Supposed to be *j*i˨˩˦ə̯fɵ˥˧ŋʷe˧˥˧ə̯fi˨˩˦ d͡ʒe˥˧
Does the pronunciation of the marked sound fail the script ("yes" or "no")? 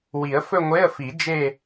yes